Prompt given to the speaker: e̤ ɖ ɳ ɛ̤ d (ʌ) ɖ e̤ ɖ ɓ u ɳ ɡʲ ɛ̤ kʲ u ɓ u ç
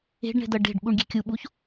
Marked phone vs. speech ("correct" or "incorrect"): correct